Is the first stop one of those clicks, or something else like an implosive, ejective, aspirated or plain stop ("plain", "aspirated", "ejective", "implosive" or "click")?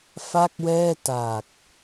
plain